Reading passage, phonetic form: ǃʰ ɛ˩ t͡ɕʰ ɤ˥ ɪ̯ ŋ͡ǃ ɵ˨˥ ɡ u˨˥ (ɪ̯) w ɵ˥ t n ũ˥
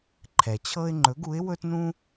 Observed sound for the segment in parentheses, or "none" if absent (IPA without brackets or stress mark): ɪ̯